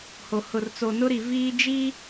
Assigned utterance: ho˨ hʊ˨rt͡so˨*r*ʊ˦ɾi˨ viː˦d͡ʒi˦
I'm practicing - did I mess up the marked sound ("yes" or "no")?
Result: yes